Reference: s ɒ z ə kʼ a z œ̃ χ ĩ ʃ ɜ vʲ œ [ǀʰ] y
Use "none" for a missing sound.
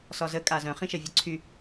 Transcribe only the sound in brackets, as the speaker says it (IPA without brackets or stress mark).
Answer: ǀʰ